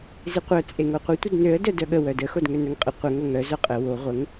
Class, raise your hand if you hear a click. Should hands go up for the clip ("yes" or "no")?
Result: no